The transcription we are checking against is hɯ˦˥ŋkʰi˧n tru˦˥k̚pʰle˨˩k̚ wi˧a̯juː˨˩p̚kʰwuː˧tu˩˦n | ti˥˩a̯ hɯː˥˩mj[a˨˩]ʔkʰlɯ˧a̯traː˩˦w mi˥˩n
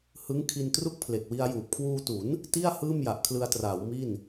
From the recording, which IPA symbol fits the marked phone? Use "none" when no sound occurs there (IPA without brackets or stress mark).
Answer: a˨˩